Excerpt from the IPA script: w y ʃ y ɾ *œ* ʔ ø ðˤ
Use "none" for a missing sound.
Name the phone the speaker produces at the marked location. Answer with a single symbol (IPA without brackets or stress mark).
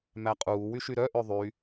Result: œ